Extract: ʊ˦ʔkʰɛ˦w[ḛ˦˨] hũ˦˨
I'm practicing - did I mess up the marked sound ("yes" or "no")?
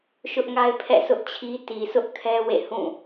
no